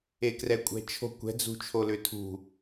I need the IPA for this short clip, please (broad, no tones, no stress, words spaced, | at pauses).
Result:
ekrɛkʷʼɛ̤t͡ʃʰo̤ kʷɛ̤ d͡zṳt͡ʃʰolʏtʰṳ